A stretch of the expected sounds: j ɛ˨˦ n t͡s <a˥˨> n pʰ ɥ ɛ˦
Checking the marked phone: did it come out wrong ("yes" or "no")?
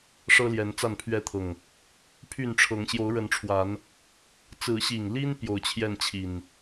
no